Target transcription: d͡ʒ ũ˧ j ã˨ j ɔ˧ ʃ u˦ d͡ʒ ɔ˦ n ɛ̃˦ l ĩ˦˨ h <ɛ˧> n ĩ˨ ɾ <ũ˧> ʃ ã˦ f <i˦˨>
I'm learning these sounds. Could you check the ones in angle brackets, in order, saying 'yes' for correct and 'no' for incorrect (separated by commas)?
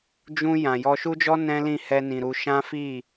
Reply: yes, no, yes